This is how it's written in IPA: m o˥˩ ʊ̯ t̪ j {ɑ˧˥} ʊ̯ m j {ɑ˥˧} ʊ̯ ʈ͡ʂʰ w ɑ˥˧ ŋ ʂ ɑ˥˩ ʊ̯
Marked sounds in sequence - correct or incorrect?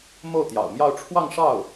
incorrect: ɑ̰˨˩, correct

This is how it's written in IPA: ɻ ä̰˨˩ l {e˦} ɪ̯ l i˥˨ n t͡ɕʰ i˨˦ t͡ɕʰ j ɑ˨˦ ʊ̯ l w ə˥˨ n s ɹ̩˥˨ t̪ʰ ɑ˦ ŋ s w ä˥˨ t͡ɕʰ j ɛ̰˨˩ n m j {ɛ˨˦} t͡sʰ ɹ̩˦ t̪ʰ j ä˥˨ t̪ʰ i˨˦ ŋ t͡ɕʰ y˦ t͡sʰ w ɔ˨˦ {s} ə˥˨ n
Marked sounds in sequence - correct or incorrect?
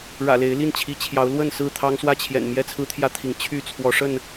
incorrect: e˨˦, incorrect: ɛ˥˨, incorrect: ʂ

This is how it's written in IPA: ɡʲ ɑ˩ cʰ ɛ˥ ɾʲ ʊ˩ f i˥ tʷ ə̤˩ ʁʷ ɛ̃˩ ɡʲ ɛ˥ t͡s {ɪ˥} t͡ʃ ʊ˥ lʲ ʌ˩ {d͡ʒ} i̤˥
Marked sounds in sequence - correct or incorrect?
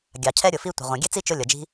incorrect: i˥, correct

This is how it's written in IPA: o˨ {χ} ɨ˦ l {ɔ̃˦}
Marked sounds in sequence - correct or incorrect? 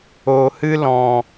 incorrect: h, incorrect: ɔ̃˨

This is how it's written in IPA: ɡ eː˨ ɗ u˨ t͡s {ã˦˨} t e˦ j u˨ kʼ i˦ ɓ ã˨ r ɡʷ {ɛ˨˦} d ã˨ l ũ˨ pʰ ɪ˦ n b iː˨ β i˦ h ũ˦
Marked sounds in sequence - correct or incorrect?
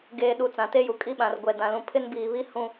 incorrect: ã˨, incorrect: ɛ˨

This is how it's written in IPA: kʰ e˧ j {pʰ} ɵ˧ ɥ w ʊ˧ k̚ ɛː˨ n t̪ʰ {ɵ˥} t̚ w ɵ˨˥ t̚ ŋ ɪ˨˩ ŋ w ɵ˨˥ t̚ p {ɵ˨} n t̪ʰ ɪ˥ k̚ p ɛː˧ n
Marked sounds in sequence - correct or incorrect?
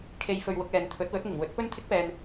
incorrect: f, incorrect: ɵ˨˥, incorrect: ɵ˥

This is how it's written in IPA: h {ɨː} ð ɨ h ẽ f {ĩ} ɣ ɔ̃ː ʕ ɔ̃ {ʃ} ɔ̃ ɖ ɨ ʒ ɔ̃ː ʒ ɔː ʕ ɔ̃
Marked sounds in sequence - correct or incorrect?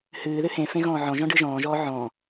correct, incorrect: ẽ, incorrect: ʒ

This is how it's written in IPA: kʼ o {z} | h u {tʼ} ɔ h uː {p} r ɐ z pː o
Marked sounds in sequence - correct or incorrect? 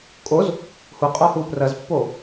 correct, incorrect: qʼ, correct

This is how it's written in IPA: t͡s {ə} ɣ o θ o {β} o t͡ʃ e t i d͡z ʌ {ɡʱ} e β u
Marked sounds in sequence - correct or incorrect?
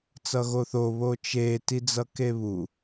incorrect: ʌ, correct, incorrect: k

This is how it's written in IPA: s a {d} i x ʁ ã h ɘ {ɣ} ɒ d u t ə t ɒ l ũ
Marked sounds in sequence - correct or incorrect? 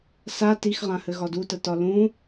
incorrect: t, correct

